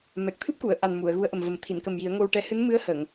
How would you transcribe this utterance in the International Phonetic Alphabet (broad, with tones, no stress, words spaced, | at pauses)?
mɛ˨˩k̚t̪ʰɨ˦˥p̚ku˨˩˨ə̯ ʔa˨˩n mu˨˩˨ə̯ɣu˧˥ə̯ʔə˨˩mvə˨˩˦m t̪ʰi˨˩˨nkə˨˩m ji˨˩˦ə̯ŋo˧w ʈɛ˧˥ hɨ˧˥nmɨ˧˥ə̯hə˨˩˨ŋ